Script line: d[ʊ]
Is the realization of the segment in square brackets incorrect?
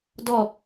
yes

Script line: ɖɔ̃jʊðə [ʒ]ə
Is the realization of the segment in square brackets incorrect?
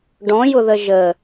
no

